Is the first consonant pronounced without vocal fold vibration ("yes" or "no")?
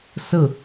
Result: yes